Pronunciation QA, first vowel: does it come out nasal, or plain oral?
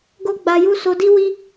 oral